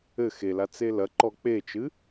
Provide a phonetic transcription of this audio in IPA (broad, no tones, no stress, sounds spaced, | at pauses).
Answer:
ɘ x e l a t͡s e l ɐ ǃ ɔ k͡p e t͡ʃ ɨ